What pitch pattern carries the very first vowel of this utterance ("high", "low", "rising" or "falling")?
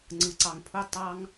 low